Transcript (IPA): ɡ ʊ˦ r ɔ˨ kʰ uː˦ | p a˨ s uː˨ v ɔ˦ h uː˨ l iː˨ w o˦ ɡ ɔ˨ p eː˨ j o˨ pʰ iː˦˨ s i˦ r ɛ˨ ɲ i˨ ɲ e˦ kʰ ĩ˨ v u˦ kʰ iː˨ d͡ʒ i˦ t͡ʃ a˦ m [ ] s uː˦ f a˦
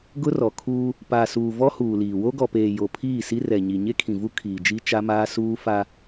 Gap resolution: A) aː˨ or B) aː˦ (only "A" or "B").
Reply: B